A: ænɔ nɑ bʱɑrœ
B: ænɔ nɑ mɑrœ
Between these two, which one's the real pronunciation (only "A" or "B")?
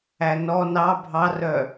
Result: A